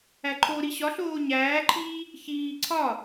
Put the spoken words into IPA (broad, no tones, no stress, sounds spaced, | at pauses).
æ ǃʰ o ɾ i ɕ ɒ ɬ oː ɲ æː ǃʰ iː | ç iː ǀʰ ɒ